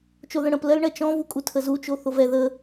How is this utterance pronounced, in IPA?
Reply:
t͡ʃ o ð ə̃ ɽ ə̃ p l ɜ l ɳ ɜ t͡ʃ ɔ̃ v u kʼ u tʰ ə z u t͡ʃ o θ o v ɛ ð ə

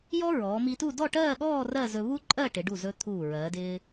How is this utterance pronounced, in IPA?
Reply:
j ɔ˥ ɹ ɔː˩˧ m i˧ t u˥˧ d ɔ˥˧ ʈ ɜː˥˧ ɠ ɔː˥˧ r ɜ˥˧ z ɵ˧ β u˥ ǃʼ ɜ˥˧ ʈ ɪ˩˧ ɖ u˧˩ z ɵ˧ t̪ʰ uː˧˩ ɹ ɜː˩˧ d ɪː˧

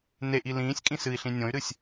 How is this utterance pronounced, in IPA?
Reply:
n e ʔ i l ĩː sʲ kʼ ĩ s ɨ i̯ ɬ ĩ nʲ õ y̯ ɾ ɨ sʲ

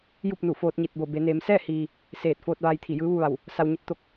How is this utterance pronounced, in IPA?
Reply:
j u˥˨ p̚ n u˧˩ f oː˧ t̚ ɲ i˧˩ t̚ b o˧˩ b e˩˧ n eː˩˧ m s ɛː˥˨ h iː˩ | s eː˧˩ t̚ f oː˧ t̚ ʋ aː˧ j t̪ʰ i˧˩ j ɯː˧˥ ʋ u˧ ʋ a˧˩ w | s a˧ w ɲ e˧˥ t̚ t̪ o˧ k̚

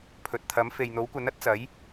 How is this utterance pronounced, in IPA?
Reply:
pʰ ɵ˨ t̚ t̪ʰ ɐ˨˥ m f e˨ j n̪ o˨˥ w kʷ ɐ˨˥ n ɐ˥ t̚ t͡s ɐ˨˥ j

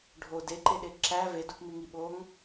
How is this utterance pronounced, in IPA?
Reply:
ɖʱ o d e ǃ e ɗ e ǁ æ v e d u p m i ŋ i ɓ o ŋ

